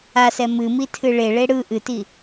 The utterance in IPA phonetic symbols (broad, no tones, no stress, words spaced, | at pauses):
asɛ mɨmitʰɨ ɭeɭe ɽɯ ʔɨti